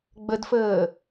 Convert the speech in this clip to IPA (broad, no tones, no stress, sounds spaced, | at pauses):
ɡ͡b ə d f əː